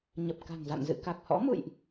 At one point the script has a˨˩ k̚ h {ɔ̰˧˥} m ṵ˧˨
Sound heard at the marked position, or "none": ɔ̰˧˥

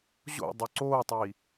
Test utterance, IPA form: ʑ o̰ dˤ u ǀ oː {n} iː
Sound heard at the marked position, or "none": tˤ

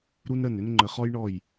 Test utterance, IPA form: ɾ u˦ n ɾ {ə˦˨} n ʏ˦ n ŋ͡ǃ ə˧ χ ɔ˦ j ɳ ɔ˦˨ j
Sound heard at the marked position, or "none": ə˦˨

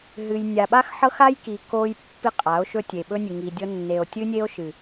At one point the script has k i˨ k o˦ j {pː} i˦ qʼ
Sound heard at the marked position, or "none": pː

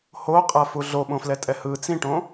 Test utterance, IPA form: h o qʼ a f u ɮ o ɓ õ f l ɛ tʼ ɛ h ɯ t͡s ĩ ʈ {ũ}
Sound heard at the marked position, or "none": õ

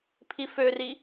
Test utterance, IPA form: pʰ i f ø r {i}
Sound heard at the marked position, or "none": i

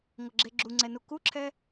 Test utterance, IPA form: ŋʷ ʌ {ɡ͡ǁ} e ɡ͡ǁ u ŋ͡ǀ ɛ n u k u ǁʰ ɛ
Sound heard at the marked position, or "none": ɡ͡ǁ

